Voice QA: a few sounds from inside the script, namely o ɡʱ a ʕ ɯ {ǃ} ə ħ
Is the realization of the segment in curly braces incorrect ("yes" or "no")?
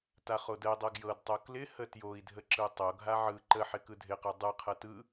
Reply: no